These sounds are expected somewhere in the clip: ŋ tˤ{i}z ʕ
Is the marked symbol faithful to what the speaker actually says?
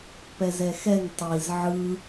yes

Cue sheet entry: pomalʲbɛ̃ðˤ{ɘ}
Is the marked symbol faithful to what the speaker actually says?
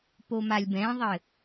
yes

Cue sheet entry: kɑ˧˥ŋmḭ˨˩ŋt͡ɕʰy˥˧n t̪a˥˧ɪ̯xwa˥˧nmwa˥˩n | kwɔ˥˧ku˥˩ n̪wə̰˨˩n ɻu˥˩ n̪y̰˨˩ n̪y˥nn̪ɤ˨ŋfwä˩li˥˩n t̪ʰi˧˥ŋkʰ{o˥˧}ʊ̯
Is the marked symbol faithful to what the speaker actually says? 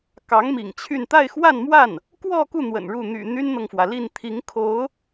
no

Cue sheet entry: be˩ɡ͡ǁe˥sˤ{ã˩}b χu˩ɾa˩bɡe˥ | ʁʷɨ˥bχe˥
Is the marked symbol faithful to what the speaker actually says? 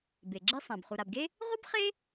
yes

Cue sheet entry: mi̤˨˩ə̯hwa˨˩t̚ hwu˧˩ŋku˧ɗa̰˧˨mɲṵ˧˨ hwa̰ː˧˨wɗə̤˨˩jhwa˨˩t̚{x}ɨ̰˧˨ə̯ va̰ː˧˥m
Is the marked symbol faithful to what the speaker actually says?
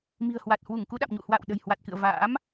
no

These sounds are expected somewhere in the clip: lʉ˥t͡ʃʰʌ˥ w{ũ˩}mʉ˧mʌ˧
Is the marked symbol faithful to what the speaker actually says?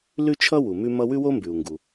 no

